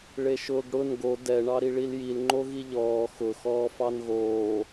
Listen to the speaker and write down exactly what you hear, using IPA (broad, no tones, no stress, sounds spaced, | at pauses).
ɭ e ʃ ʊː ɡ ɽ ʊ n ɡ o d ɛ ɳ ɑ ɾ i ɭ i l j i l ŋ͡ǃ o ɣ i ʎ ɔː x ʊ x ɔː f ɑ n ɣ oː